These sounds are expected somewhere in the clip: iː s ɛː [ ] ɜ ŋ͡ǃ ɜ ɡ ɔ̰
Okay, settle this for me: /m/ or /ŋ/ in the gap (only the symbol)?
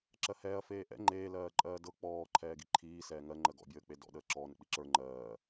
ŋ